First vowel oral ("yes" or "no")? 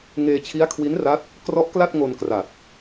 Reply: yes